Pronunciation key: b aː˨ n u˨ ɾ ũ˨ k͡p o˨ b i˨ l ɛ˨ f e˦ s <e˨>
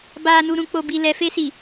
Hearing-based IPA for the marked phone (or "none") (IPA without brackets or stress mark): i˨